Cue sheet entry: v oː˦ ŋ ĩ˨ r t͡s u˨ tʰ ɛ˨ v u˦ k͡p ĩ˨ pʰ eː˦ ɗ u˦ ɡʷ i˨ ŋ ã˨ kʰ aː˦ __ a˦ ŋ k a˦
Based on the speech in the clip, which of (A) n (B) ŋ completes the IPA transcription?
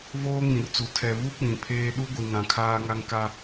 B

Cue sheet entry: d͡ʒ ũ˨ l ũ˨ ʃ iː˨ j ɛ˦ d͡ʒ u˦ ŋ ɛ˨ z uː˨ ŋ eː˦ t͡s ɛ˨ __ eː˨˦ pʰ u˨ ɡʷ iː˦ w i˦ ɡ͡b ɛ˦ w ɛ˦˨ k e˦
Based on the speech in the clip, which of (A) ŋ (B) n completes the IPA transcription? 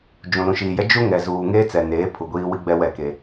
B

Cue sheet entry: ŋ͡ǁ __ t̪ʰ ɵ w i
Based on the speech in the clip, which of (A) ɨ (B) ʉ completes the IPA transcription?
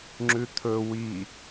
B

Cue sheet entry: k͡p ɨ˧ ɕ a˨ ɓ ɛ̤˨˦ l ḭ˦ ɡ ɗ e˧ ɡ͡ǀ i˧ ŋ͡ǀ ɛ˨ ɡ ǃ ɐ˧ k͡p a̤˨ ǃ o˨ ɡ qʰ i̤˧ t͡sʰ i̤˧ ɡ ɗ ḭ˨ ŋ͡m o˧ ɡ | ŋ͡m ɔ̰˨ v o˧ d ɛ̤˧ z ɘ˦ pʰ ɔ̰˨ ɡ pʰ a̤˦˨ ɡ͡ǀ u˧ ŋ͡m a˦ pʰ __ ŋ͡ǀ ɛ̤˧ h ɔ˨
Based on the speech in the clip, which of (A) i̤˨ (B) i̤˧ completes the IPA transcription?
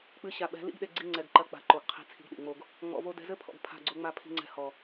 B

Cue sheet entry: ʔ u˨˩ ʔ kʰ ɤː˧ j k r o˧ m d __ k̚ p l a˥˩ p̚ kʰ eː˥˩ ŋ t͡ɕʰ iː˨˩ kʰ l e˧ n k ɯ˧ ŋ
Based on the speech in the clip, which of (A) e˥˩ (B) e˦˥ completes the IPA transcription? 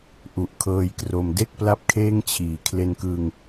A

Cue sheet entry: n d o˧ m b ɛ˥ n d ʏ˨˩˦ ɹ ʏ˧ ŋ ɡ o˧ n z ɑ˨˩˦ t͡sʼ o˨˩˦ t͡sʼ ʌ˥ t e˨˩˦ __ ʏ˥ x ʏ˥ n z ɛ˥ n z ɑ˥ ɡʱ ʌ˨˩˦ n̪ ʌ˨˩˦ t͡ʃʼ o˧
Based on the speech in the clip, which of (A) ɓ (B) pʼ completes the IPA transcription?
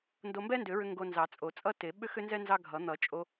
A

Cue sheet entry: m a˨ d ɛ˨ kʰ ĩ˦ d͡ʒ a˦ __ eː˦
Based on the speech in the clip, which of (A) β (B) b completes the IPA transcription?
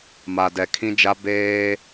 B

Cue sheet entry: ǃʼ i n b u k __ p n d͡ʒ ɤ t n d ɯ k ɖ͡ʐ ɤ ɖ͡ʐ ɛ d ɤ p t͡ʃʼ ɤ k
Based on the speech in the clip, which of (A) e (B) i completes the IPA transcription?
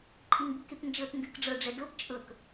A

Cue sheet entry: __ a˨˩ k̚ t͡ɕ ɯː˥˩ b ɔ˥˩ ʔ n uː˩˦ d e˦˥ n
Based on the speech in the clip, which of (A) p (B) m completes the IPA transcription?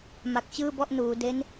B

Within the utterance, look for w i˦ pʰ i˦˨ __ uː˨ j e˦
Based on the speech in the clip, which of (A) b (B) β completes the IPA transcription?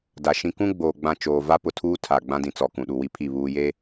B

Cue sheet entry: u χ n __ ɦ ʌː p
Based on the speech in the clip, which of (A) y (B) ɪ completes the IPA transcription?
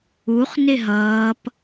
B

